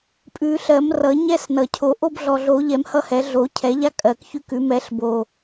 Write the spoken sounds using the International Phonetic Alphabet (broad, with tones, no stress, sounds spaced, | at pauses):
pʼ ʉ˨˩˦ ɬ ɜ˨˩˦ m r ʌ˨˩˦ ɲ ɛ˦ s n ʌ˨˩ cʰ o˨˩˦ ʔ o˦ b ɮ ɔ˨˩ ɮ o˨˩˦ ʎ ɛ˨˩˦ m h ʌ˦ h ɛ˨˩˦ ɮ o˨˩˦ cʰ ɛ˨˩˦ ʎ a˦ kʼ ɜ˨˩ k ç ʉ˦ k ʉ˨˩˦ m ɛ˨˩˦ ɬ b o˨˩